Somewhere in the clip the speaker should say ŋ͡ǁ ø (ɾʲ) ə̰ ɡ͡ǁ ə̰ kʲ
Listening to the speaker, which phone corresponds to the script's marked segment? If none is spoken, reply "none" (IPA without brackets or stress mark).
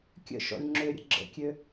ɾʲ